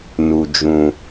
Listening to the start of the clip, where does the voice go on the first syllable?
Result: low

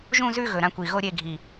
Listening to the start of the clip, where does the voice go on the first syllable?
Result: falling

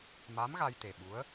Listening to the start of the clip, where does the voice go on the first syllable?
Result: rising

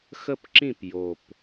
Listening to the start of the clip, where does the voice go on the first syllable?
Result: falling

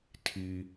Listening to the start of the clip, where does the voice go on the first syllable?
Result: high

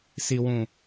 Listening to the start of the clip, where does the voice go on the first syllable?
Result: low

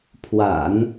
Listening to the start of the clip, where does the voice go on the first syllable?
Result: low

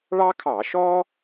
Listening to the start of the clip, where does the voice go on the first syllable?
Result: high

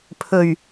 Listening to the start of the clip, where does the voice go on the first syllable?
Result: low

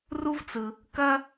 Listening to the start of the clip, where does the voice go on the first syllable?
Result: high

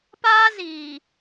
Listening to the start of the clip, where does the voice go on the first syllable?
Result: high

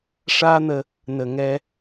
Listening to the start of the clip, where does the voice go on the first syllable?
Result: high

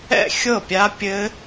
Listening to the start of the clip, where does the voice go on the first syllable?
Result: falling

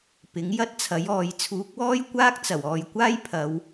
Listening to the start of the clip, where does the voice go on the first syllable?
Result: rising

